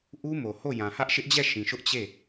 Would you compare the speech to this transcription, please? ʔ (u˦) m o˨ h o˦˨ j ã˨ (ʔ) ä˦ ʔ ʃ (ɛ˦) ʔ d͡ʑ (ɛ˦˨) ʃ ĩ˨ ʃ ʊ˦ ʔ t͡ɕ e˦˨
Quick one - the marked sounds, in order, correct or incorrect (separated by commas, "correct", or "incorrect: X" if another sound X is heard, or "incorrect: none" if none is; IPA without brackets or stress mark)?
correct, incorrect: h, incorrect: ɪ˦, correct